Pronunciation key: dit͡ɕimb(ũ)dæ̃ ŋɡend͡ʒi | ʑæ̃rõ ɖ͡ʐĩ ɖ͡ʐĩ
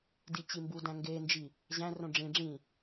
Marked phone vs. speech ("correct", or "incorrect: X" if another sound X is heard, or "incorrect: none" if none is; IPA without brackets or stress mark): incorrect: u